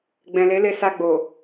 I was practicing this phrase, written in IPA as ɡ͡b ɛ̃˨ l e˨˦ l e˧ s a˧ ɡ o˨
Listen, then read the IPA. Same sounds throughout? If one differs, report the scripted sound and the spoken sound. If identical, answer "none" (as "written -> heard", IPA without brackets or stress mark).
ɡ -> ɡ͡b